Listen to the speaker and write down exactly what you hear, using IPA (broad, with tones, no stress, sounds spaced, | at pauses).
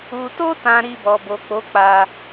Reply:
u˨ t o˧ t ã˨ ɾ i˧ b ɔ˨ b o˨ k͡p o˨˦ k͡p a˧